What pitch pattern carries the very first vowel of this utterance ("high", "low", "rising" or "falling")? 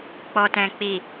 low